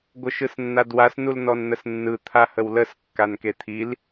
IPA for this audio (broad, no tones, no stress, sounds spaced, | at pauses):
ɡʷ ə ʃ ɯ s nː a d w a s n u l n ɔ n n̪ ə s nː ɯ t̪ʰ a h ə w l ə s kː a n k e t̪ʰ i l